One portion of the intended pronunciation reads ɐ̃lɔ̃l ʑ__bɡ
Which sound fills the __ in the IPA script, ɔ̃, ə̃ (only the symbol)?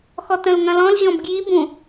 ɔ̃